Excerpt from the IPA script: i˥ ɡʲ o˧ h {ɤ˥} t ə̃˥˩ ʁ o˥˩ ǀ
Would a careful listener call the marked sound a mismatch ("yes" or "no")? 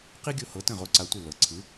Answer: yes